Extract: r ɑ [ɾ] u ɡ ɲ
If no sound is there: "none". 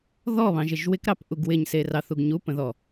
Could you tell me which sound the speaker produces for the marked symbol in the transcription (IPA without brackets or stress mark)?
θ